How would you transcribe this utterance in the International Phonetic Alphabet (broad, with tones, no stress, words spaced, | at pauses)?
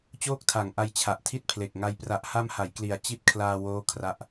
t͡ɕoː˥˩k̚tʰa˨˩ŋʔa˧j t͡ɕʰa˨˩ʔtʰi˥˩t̚pʰle˨˩k̚ŋa˧j pra˨˩ʔha˧m ha˩˦jkli˨˩a̯ t͡ɕi˦˥t̚ kʰlaː˧woː˦˥ kʰra˦˥ʔ